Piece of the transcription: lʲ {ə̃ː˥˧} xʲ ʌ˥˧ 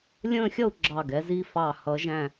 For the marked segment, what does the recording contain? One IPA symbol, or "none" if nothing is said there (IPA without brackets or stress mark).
ə̃ː˥˧